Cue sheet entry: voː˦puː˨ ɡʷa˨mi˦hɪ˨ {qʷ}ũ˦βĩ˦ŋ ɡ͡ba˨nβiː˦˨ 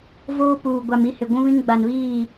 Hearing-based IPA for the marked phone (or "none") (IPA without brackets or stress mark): ɡʷ